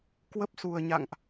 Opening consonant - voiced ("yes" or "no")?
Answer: no